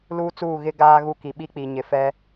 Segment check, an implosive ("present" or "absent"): present